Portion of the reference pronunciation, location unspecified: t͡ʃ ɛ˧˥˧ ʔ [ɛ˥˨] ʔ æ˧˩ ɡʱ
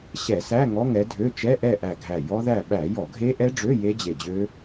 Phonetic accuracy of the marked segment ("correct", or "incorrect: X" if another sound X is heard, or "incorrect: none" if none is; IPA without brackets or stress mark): correct